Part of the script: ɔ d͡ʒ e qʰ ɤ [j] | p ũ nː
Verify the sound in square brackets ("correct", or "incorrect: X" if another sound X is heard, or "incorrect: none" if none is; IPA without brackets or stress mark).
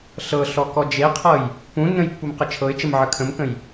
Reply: correct